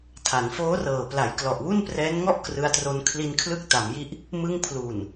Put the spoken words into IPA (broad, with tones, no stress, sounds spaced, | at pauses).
tʰ a˩˦ n f oː˦˥ r ɤː˨˩ p l a˩˦ j k l ɔ˨˩ ʔ w u˥˩ n p r ɛː˦˥ n ŋ ɔ˥˩ ʔ k r ɯ˧ a̯ t r o˧ n kʰ l i˧ n kʰ l ɯ˦˥ k̚ t a˩˦ m j i˥˩ ʔ | m ɯ˧ ŋ pʰ l uː˨˩ n